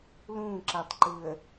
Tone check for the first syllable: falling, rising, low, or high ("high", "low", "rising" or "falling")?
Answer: falling